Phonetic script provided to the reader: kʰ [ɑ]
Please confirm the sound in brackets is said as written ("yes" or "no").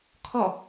no